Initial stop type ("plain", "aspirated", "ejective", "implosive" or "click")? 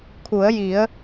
aspirated